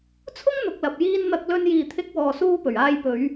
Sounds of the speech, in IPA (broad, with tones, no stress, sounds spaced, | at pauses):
t͡sʰ ʊ˥ ŋ n̪ ʊ˨ k̚ l ɐ˨ p̚ j iː˧ n n̪ ɐ˧ k̚ l ɵ˧ n j iː˨ t̪ʰ ɪ˧ k̚ w ɔː˨ s uː˧ p ɵ˨˩ ɥ aː˧ j p ɵ˨˧ ɥ